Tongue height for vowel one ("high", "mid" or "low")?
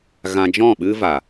low